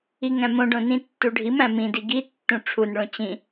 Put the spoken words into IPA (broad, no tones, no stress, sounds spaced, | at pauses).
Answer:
i ŋ æ̃ m õ ɖ õ n ĩ tː u ɖʱ i m æ̃ m ĩ d i ɡ i tː ũ ʈ͡ʂʰ u n ɭ õ t͡ɕ ĩ